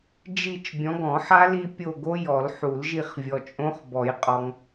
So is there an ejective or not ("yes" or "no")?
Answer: yes